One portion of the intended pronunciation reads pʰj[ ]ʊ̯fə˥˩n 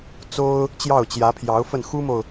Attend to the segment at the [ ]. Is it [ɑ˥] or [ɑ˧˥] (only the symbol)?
ɑ˧˥